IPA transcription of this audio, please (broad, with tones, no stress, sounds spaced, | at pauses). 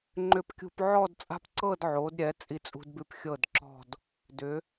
ŋ͡ǃ ʏ˧ p kʲ ṳ˧ p ʕ ɔ˥˧ d t͡sʼ a̤˥ p ǀ ɤ˥˧ d ʕ o˩˧ d ɾʲ ɛ˩˧ t͡sʼ i˧ t͡sʼ ṳ˧ d b ʉ˧˩ p xʲ ɤ˧˩ d ǁ ɔ̤˧˩ d | d ʏ˩˧